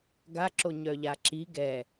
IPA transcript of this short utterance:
ɡ a ǁ o ɲ œ ʎ a ǁ i ɡ ɛ

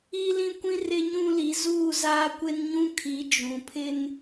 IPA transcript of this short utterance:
i˦ l ĩ˦ kʷ ĩ˦ r ɪ˦ ɲ ũ˦ l i˨˦ z uː˦˨ z aː˦ kʷ e˦ n ɲ ũ˦ kʰ i˨˦ d͡ʒ ũ˨ pʰ ɪ˦ n

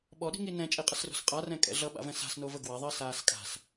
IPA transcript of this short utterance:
ɓ ɔ ɗ i̤ ŋ i n ɛ̃ t͡ʃʼ i qʼ ə s r o̤ s qʼ a r ɛ̃ kʼ ɛ̰ ɮ ʌ ɓ a̰ v ɛ̃ s a̤ s n o v ə ɡ w ɐ ðˤ əː s aː s kʼ a̤ s

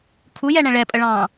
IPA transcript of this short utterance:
kʰ u j ɛ ɳ ɛ̃ ɭ ɛ pʼ ə ɭ ɑ̃ː

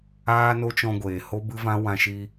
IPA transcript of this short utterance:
aː˦ n o˦ t͡ʃ ɔ̃˧ ɡʷ eː˨ h o˦ b ɨ˦ v ã˦ w ã˧ ʃ i˧

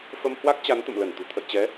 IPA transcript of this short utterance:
f ə˧ m h w a˦˥ k̚ t͡ɕ a˨˦ n t̪ ə̰˧˨ m l ə˧˩ n t̪ ṳ˨˩ t̪ʰ ə̰˧˨ j t͡ɕ ɛ˨˦

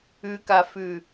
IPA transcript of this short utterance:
ʉ k a f ʉ

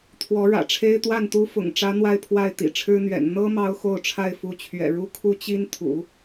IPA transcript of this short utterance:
t̪ʰ w ɔ˧˥ ɻ ä̰˨˩ ʈ͡ʂʰ e˥ ɪ̯ t̪ w a˥˩ n t̪ u˥ f ʊ̰˨˩ ŋ ʈ͡ʂ ä˧˥ n̪ w a˥˧ ɪ̯ pʰ w a˥˩ ɪ̯ t̪ ḭ˨˩ ʈ͡ʂʰ ɻ̩˥ n̪ ɥ ɛ̰˨˩ n n̪ ɤ˥ m ɑ˥ ʊ̯ x o˥˧ ʊ̯ ʈ͡ʂʰ a˥˩ ɪ̯ f u˧˥ t͡ɕʰ ɥ ɛ̰˨˩ ɻ u˥ kʰ u˥ t͡ɕ i˥ n t̪ʰ ṵ˨˩˦

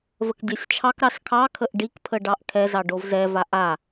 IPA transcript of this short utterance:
v ə k dʲ ɛ sʲ t͡ʃʰ ɑ k ɾ ɑ s kʰ ɑ kʰ ə ʔ ɖ i k pʰ ə ɖ ɑ ʔ kʰ ɛ z ɑ ɖ o v z ɛ v a ʔ a

